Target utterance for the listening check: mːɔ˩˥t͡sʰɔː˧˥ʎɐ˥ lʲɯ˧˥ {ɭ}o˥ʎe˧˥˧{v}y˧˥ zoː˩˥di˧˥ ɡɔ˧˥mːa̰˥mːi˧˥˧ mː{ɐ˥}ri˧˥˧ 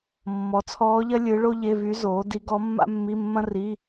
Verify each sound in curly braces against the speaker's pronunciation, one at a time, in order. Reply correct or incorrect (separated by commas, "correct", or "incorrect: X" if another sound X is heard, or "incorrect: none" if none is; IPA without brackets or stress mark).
correct, correct, incorrect: ɐ̃˥